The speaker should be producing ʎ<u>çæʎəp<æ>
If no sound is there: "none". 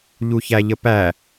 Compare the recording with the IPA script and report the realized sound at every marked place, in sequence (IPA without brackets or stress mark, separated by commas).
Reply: u, æ